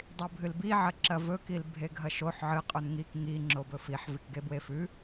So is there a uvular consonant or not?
yes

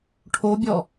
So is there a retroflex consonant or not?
yes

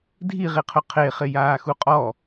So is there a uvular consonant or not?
yes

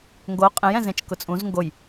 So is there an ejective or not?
yes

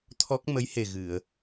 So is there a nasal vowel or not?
no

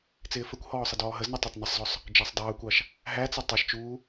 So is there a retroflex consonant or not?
no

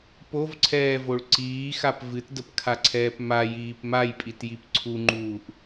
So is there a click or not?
yes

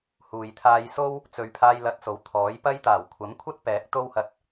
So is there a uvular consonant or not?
no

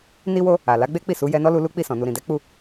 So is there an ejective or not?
no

